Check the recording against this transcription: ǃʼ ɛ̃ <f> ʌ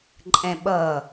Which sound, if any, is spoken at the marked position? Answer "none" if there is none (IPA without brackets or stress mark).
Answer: ɓ